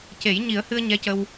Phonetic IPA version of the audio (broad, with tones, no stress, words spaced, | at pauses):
ce˨˩˦j ɲi˨˩˦ə̯hɨ˧ə̯ ɲɛ˧˥cə˧w